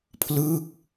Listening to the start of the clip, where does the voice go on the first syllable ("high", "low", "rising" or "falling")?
falling